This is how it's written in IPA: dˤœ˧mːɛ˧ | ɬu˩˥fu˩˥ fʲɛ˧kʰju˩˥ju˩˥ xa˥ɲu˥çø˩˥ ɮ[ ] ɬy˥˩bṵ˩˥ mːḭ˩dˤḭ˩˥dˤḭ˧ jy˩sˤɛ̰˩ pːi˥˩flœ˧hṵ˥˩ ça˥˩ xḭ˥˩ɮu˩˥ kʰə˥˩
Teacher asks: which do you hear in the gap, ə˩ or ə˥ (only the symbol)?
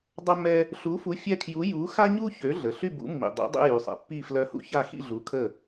ə˩